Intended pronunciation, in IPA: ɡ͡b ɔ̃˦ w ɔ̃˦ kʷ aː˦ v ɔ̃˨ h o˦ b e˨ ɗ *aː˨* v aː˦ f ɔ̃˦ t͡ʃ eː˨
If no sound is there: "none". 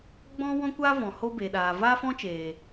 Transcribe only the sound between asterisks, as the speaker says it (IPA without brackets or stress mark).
aː˨